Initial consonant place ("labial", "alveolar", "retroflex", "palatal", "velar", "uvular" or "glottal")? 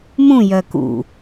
labial